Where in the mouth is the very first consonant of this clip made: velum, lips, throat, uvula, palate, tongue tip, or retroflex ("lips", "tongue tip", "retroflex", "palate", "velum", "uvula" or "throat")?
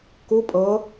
velum